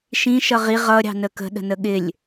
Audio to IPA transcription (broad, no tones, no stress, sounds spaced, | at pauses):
ʃ ĩ ʃ ʌ ʁ i ʁ ʌ ɾʲ ɑ̤ n ə k ə̤ ɗ ə̤ n ə ɠ ɪ lʲ